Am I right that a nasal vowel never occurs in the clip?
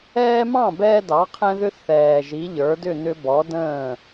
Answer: no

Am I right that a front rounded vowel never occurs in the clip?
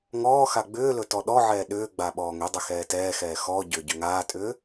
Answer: no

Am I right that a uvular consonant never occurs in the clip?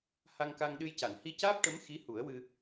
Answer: yes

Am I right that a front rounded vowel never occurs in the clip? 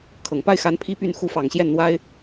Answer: no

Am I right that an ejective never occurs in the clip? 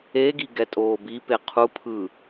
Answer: no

